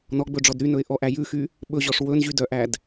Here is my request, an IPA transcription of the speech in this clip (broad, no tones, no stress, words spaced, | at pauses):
nɔɡ͡bɵɖ͡ʐɔd ɾynɵɪ̯ ʔɔʔæ jʉxy | ɓɵʑɔʂ wɵnʑydœʔæd